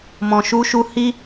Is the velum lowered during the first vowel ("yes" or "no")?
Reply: yes